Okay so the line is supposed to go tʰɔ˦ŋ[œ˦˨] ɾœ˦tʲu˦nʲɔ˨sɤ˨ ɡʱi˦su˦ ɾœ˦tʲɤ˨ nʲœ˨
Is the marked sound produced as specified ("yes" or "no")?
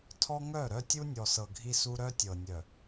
yes